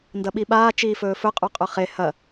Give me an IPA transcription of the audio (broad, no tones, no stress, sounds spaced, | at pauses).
n d ɐ ɓ i ɓ aː t͡ʃ iː f ɵː f ɵ qʼ u qʼ ɵ χ e h ɐ